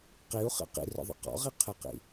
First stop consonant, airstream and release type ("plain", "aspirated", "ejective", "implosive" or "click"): plain